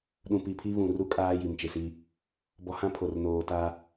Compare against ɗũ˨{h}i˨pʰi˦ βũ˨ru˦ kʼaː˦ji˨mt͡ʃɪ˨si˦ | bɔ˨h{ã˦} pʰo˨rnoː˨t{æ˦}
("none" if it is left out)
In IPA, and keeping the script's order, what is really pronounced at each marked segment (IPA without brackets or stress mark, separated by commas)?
p, ã˦, a˦